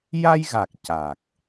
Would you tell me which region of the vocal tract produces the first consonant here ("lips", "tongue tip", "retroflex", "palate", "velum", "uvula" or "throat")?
palate